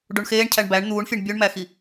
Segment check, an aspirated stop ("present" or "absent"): present